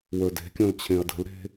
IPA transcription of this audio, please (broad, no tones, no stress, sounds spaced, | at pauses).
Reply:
w ə˞ d e̤ kʲ õ l t͡ɕʰ ẽ ɐ̯ d ə̤ l ɾ e̤